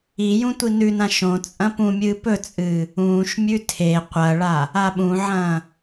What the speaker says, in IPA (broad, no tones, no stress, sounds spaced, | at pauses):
i j ũ tʷ i n ʉ n ã ʃ õ t͡sʼ ɐ̃ p ũ mʲ ɨː p ɵ t͡sʼ ɨː | ũː ʃ mʲ ʉ tʰ e qʷ ɐ ɭ a | a ɓ ũ ʕ ɐ̃ː